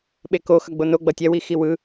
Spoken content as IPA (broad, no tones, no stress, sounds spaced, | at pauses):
ɓ e k o x ʌ ɡ͡b o n o ɡ͡b ʌ tʲ ɛ w i x i w ɯ